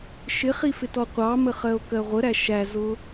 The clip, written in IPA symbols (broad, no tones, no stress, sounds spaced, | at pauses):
ʃ ɪ χ i f ɪ t ɔ qʷ ɑ m ə χ ɜ o̯ k ɜ ʁʷ ə ɾ æ ʃ æ z ʊ